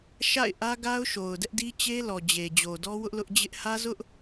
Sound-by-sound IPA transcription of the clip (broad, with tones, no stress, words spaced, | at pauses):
ʃa̰˦˨ɪ̯ʔä˦ɡa˦ʊ̯ʃo˨ʊ̯ dɛ˦ʔdi˦ t͡ɕe˦lɔ˨d͡ʑe˨ d͡ʑo˨dɔ˦wʊ˦ʔ lʊ˦ʔd͡ʑɪ˦ʔ hä˦zʊ˦ʔ